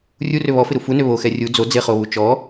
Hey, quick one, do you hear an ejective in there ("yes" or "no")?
no